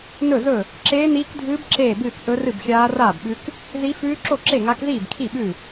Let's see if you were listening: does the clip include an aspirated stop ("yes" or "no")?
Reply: yes